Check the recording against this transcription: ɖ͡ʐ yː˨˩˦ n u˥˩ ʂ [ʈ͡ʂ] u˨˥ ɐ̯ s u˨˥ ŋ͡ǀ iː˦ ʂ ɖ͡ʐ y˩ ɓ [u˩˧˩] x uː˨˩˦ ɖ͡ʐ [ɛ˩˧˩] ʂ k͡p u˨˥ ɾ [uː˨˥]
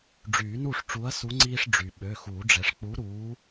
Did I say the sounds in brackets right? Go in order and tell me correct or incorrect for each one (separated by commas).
correct, incorrect, incorrect, correct